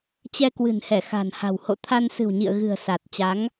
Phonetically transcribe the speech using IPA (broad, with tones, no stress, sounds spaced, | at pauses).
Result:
t͡ɕ ɛ˧ k w ɨ̤˨˩ n h ɛ˧˩ x a̤˨˩ n h a̤˨˩ w h o̰˧˨ t̪ʰ a˧ n s ɨ̤˨˩ w ɲ ḭ˧˨ ə̯ ɣ ɨ̤˨˩ ə̯ s a˨˩ t̚ t͡ɕ a˨˦ ŋ